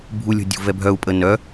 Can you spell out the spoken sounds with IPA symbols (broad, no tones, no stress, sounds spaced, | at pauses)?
bʱ u lʲ o̤ dʲ ṳ v ɛ bʱ œ u̯ pʼ ə n œ